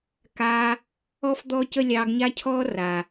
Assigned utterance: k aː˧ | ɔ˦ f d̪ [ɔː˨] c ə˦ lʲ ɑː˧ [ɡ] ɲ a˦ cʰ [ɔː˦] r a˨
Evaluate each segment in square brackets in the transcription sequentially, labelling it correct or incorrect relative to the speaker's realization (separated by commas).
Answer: incorrect, correct, correct